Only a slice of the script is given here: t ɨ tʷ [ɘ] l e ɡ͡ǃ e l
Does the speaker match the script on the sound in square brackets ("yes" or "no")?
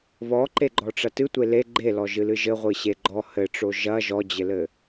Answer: no